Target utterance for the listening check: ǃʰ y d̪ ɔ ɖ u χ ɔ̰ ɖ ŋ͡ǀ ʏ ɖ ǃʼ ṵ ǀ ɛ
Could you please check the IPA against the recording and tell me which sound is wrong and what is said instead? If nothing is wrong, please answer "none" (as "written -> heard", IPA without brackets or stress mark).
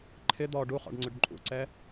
y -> ɪ